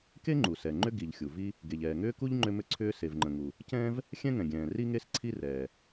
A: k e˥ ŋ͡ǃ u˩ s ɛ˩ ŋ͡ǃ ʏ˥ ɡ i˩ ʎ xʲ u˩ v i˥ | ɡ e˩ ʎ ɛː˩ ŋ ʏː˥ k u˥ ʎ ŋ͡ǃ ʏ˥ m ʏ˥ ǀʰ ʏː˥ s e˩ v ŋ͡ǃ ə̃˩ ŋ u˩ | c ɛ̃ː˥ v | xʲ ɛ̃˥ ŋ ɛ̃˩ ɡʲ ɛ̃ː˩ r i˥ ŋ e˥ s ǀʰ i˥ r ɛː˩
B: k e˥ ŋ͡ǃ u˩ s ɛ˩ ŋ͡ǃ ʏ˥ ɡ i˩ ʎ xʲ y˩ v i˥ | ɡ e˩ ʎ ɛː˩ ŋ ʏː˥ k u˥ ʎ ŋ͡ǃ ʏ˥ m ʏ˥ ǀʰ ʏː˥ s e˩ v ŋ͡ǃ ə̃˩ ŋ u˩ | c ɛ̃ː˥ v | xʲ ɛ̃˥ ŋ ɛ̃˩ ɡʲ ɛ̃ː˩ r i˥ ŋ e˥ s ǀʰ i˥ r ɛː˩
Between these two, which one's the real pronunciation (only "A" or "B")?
A